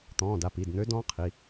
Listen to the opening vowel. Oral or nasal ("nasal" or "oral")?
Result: nasal